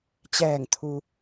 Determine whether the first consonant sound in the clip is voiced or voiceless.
voiceless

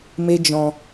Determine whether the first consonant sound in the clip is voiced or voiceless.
voiced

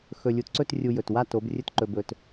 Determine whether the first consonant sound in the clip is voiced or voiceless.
voiceless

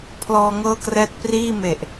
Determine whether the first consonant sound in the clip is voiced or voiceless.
voiceless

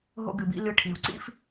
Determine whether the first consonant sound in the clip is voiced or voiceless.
voiced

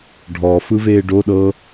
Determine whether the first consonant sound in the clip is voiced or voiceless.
voiced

